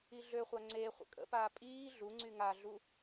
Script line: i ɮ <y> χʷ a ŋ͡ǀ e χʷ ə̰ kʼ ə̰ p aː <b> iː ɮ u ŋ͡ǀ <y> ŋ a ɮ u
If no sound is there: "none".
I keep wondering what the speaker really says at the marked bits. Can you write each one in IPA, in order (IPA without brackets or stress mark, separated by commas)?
ø, pʼ, y